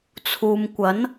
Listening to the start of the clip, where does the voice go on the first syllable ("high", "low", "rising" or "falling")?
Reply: low